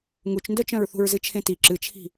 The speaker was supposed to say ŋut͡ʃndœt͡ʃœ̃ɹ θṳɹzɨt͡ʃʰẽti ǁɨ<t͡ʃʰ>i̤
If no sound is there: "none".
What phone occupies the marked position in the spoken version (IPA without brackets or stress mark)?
t͡ʃʰ